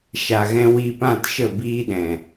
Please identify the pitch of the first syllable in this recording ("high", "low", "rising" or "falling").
low